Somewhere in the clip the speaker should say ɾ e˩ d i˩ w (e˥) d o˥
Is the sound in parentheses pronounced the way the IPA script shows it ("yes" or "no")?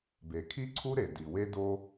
yes